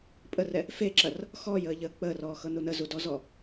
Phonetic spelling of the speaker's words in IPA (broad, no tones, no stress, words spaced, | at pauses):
pʼərɛ | feǁɐr | xɔːjəːʎəː k͡pəːrɔːxɤnu nəzudɔzɔ